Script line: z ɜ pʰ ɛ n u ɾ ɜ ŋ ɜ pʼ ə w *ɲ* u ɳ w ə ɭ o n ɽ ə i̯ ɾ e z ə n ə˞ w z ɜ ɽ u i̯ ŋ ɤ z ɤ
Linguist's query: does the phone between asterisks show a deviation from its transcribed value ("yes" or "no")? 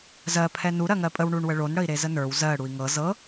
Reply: yes